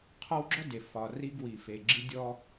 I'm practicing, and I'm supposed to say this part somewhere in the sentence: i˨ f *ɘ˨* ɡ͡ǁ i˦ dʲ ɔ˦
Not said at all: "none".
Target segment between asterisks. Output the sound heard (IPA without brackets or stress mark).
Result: e˨